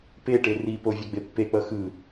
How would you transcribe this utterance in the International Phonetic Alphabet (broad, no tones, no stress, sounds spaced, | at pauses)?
p e ʈ e r i p o vʲ a ɡ͡b e pː e k͡p ʌ x ɯ